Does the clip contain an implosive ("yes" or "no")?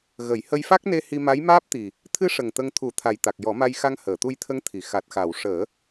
no